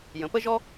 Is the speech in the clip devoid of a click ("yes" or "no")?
yes